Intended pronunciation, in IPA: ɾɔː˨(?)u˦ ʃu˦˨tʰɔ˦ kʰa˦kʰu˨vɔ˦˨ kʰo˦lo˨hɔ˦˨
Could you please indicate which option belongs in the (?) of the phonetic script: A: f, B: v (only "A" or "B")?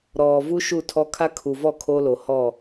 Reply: B